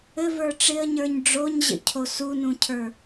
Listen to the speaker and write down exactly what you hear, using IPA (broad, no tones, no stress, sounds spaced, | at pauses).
ɘ v ə˞ ʈ͡ʂ ɪ ə̯ ɲ ə˞ ɲ ɖ͡ʐ o ɲ ʑ ə̰ cʰ o s u n ũ cʰ ə˞